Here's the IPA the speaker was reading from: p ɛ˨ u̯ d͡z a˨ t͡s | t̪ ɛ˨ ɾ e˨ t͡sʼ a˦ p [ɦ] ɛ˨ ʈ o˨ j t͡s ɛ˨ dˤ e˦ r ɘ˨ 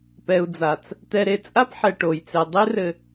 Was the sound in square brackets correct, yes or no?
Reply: no